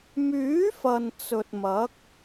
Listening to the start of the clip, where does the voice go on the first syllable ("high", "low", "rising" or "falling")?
rising